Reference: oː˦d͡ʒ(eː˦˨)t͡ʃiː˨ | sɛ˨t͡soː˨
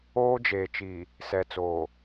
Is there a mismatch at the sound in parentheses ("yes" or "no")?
yes